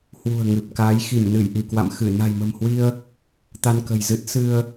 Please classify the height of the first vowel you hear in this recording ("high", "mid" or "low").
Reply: high